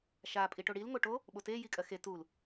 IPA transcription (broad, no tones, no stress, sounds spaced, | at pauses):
ʃ a pʼ i ʈ o ɽ i l ŋ o ʈ o | ɓ o t e j i kʼ ɜ x e t u l